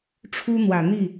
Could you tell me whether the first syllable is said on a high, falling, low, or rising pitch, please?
high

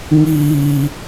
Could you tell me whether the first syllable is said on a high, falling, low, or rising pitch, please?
low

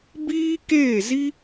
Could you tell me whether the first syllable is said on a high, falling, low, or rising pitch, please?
high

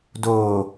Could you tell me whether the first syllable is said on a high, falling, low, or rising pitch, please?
low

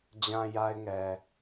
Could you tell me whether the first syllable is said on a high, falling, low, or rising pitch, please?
low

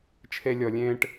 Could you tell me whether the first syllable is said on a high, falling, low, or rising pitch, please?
low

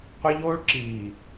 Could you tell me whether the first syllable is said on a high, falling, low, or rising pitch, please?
high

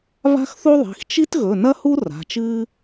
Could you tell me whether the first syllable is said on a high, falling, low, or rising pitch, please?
high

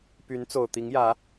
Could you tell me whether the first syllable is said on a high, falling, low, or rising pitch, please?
rising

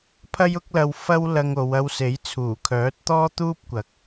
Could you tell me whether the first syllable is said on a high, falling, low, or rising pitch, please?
high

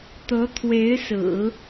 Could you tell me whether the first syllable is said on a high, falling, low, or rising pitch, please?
rising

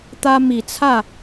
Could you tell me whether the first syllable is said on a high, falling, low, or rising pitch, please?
high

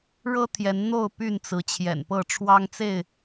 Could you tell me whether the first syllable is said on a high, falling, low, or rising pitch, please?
high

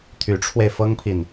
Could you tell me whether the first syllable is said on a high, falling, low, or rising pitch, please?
rising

